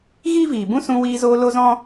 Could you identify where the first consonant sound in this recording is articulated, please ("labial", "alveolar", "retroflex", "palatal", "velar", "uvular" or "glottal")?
velar